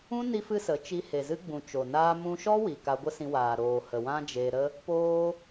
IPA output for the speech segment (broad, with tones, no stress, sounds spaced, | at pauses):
ũ˦ n i˦ f ɨ˦ s ə˨˦ t͡ʃ i˧ h e˨ z ɨ˦ ɡ͡b ũ˨ t͡ʃ o˨ n aː˦ m ũ˦ ʃ ɔ˦ w i˨ k a˧ ɡʷ ə˦ s ĩ˧ w aː˨ ɾ oː˨ h ə˨ w ã˦ d͡ʒ eː˧ ɾ ə˦ | p oː˧